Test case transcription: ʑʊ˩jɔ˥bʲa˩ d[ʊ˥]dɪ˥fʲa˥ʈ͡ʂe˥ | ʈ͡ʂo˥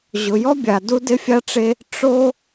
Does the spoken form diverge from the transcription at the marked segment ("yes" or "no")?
yes